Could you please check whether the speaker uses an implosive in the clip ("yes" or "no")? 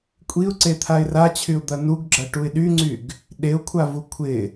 yes